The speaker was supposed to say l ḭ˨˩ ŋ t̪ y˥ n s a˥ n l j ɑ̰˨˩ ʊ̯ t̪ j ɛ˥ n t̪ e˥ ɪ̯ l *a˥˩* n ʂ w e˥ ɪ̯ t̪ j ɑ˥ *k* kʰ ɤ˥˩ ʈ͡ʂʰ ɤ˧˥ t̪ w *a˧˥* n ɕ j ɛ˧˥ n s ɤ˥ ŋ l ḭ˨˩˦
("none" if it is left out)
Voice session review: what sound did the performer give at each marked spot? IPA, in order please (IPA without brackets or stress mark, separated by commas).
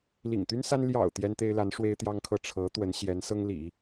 a˧˥, ŋ, ə˧˥